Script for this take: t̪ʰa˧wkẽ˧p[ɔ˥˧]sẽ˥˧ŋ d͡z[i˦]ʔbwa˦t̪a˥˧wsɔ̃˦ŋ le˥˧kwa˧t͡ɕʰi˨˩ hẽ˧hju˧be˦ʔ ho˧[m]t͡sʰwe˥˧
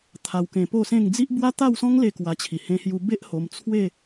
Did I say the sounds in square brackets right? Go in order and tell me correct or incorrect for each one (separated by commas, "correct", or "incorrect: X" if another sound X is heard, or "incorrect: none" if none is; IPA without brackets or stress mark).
incorrect: o˥˧, correct, correct